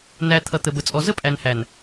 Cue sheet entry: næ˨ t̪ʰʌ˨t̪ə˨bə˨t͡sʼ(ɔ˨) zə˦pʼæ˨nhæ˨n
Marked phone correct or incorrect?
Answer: correct